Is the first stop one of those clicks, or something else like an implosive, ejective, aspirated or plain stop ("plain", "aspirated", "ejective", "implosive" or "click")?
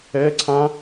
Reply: click